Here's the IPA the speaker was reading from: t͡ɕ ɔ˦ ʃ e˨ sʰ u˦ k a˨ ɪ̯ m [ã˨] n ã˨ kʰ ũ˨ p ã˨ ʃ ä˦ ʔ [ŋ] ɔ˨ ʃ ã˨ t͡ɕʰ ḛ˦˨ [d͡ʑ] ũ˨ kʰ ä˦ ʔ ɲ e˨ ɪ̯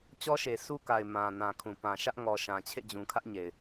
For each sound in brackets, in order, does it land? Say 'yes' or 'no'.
yes, yes, yes

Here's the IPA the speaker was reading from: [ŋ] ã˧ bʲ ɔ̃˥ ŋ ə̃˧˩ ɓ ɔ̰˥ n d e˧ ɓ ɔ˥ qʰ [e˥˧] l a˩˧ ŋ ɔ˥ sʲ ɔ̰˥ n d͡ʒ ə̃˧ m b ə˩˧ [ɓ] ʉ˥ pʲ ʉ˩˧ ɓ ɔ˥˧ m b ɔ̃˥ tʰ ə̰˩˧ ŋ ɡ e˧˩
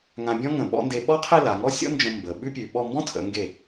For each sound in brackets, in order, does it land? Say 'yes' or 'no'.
yes, yes, yes

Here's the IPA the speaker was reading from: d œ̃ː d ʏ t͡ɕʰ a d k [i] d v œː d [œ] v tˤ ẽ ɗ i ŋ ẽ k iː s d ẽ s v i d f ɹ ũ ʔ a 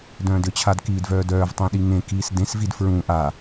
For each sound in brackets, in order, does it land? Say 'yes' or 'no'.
no, no

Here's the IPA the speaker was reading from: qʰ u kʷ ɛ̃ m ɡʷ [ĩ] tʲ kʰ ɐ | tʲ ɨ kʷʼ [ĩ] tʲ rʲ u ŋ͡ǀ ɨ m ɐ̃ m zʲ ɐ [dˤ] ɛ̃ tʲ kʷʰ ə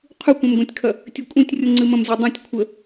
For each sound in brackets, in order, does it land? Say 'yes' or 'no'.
no, yes, yes

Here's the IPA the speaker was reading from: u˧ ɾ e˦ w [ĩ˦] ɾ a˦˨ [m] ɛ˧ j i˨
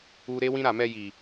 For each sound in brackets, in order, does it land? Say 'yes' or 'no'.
yes, yes

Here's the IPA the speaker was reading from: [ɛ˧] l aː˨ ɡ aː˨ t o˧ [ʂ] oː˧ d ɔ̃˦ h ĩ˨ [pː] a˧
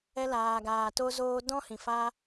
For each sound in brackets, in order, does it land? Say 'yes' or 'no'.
yes, no, no

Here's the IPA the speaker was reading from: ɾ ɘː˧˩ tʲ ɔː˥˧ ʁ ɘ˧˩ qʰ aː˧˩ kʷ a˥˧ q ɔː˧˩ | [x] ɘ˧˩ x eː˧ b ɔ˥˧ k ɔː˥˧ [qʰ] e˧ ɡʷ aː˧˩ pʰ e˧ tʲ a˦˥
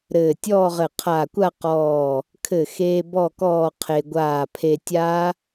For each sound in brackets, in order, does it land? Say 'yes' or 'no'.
no, yes

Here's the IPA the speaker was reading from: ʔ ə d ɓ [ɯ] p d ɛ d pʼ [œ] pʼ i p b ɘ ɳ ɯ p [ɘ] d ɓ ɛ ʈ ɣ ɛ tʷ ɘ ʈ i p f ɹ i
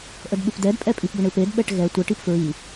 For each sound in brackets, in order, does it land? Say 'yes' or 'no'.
yes, no, no

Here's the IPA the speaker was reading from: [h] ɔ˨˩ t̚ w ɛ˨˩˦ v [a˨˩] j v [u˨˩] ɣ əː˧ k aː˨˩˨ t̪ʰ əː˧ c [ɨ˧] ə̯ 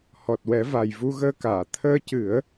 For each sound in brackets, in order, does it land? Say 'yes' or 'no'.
yes, yes, no, no

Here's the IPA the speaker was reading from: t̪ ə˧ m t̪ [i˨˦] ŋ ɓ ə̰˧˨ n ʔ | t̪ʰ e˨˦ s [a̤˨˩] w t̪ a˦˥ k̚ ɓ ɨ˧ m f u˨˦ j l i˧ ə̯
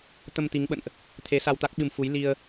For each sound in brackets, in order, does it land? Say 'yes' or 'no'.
yes, no

